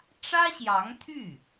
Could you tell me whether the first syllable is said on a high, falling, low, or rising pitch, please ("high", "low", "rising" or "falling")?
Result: high